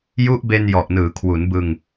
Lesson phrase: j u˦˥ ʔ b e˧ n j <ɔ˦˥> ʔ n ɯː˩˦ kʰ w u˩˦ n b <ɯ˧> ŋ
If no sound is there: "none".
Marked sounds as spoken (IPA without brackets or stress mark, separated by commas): ɔ˨˩, ɯ˧